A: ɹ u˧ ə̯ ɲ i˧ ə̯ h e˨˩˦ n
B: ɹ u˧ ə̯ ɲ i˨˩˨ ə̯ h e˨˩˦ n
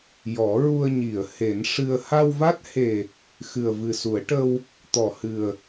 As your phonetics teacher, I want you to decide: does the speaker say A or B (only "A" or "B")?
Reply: B